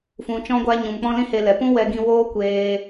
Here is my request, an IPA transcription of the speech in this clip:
f ũ˨ t͡ʃ ɔ̃˧ ɡʷ a˧ ɲ ũ˨ m k͡p ɔ̃˦ l ĩ˦ h e˧ l ɛ˨ p ũ˦ w ɛ˧ ɡ ĩ˧ w oː˦ kʷ eː˧

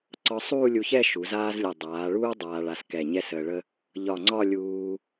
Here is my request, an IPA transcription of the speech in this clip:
ǀ ɒ˧ sˤ uː˥˧ lʲ u˧ ç ɛ˥˧ ʃ u˩˧ z aː˥ z lʲ ə˧˩ dˤ aː˩˧ ɭ uː˥ dˤ aː˧ ɭ a˧ s k ɛ˧˩ ɲ ɛ˥ s əː˧ ɭ ə˥ | ʎ ɒ˧˩ ŋ͡ǀ ɒ˥˧ lʲ uː˧

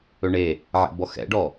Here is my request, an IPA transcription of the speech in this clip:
ɵ ɳ e | ʕ ɛ̰ b ɔ x ɛ̰ ɖ ɔ

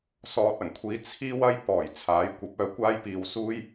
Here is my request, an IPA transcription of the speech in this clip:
s ɔː˧ t̚ ɐ˨˩ ŋ kʷʰ iː˧ t͡sʰ iː˥ w ɐ˥ j p ɔː˨˩ j t͡sʰ aː˨˥ j kʷ ɐ˨˥ p̚ œː˧ kʷ aː˥ j p iː˧ w s uː˥ j

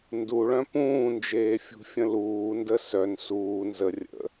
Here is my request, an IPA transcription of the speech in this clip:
n d u ɭ œ̃ p ũː n d͡ʒ eː fʲ ṳ fʲ ə̃ l uː n d ə s œ n s uː n z ə rʲ ə̰

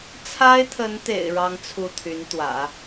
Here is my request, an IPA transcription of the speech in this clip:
t͡sʰ a˥ ɪ̯ t̪ʰ ə˧˥ n t̪ ḛ˨˩ ɪ̯ ɻ ɑ˥ ŋ t͡sʰ u˥˩ t̪ʰ y˧˥ n t̪ w ä̰˨˩˦

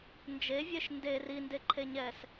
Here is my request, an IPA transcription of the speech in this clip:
n d͡ʒ e vʲ e ʃ n d e r i n d e ǃʰ e ɲ ɛː s

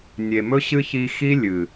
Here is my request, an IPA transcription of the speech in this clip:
nʲ e˨ m ɵ˦ ɕ ɨ˦ ç i˧ x i˦ lʲ ɨ˨

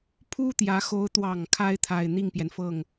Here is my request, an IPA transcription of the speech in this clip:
pʰ u˥ t̪ j ä˧˥ x o˧˥ ʊ̯ t̪ w ɑ˨˩ ŋ kʰ a˥ ɪ̯ t̪ʰ a˨˩ ɪ̯ n̪ i˥˩ ŋ p j ɛ˩ n f ɤ˥˩ ŋ

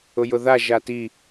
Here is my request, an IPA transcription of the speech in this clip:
ʊ j ʊ ð a ʒ a t i

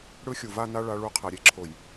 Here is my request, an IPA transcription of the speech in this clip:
ɽ ɯ˦ xʲ u˨ v a˦ n a˦ ɭ a˦ ɭ u˦ qʰ ɛ˨ ɾʲ e˨ ǁʰ o˨ j

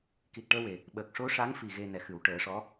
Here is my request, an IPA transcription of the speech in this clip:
k i˨˩ t̚ ʈ əː˧ w e˨˩ | ɓ əː˨˩ k̚ ʂ o˧˥ ʂ a˧˥ ŋ f i˨˩ ɣ e˧ n ɛ˨˩˦ x ɨ˨˩˦ w ʈ əː˨˩˦ ʂ ɔ˧˥

